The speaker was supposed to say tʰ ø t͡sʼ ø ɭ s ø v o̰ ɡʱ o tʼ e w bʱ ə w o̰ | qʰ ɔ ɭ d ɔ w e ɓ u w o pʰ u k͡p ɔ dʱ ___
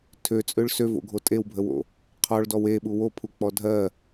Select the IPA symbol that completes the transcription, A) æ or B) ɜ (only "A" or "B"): B